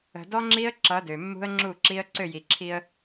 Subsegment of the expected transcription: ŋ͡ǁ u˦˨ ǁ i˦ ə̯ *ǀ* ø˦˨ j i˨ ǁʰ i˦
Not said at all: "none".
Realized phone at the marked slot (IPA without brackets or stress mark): ǀ